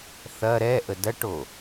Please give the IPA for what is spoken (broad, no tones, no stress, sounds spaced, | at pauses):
θ ɐ ɾ ɛ ʔ ə d ɐ ʈ o